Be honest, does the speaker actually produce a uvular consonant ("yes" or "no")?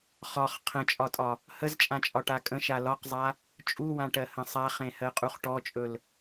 yes